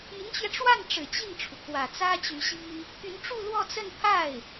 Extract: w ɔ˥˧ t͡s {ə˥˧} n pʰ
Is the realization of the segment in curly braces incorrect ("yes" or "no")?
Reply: no